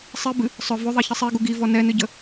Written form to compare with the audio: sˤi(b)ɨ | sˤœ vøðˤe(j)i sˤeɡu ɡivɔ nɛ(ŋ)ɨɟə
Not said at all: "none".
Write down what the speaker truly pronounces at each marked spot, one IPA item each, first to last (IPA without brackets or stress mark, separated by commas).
b, ç, n